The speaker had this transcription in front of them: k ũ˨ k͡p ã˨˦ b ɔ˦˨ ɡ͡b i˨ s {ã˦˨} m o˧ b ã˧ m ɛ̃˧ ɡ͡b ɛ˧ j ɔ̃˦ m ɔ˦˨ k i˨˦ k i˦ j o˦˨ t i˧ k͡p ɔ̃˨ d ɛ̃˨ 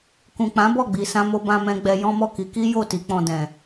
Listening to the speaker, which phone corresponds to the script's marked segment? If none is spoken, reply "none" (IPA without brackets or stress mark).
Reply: ã˧